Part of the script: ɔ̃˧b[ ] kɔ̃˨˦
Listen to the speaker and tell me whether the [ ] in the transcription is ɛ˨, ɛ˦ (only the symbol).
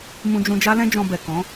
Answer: ɛ˨